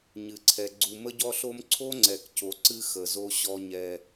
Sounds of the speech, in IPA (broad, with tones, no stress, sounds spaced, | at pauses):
ɲ ɨ˨ ǀʰ ɛ˨ ɡ͡ǀ u˨ m ə˦ ɟ ɔ˦ ɬ o˦ m ǀʰ o˦ ŋ͡ǀ ɛ˨ k c o˨ ǀ ɨ˦ x ə˨ z o˦ ɕ ɔ˦ ɲ ɛ˦